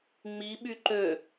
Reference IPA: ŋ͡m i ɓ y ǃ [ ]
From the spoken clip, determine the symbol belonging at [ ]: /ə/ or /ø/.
ø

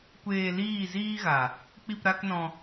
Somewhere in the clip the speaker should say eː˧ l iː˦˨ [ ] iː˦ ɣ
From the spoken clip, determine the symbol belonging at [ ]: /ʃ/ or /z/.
z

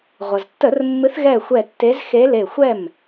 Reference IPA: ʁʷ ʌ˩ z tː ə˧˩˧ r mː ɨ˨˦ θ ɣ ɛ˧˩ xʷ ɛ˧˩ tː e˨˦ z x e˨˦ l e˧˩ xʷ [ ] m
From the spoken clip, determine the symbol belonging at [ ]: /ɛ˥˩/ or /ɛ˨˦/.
ɛ˥˩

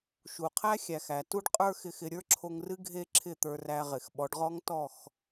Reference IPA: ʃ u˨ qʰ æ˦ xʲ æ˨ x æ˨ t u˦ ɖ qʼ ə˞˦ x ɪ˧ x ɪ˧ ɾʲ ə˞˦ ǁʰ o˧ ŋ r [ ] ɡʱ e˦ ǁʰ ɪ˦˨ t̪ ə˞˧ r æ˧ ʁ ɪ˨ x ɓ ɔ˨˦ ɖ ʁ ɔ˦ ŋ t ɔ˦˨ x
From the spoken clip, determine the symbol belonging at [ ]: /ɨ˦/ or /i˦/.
ɨ˦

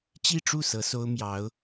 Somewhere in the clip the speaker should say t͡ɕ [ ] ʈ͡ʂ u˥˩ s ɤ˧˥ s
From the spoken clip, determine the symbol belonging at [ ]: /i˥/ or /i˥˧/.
i˥˧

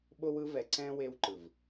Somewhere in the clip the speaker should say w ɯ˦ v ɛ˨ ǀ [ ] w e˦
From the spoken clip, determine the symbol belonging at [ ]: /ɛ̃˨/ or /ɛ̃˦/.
ɛ̃˦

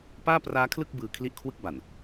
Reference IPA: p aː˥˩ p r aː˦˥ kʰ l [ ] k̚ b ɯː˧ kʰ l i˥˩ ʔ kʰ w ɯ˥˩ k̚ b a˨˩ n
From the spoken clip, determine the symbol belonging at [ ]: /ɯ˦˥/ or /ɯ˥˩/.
ɯ˥˩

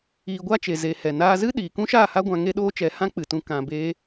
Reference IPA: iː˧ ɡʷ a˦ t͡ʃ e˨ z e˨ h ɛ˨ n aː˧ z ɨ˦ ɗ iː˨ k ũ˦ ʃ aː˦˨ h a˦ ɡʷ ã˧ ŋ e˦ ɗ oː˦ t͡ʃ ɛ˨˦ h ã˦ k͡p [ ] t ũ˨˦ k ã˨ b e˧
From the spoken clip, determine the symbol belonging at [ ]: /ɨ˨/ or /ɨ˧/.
ɨ˨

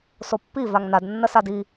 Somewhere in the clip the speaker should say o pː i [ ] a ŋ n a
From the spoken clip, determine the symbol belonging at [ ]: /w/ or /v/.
v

